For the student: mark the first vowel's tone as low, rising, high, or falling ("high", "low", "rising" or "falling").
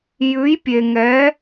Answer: rising